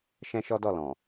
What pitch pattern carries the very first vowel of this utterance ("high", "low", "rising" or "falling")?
high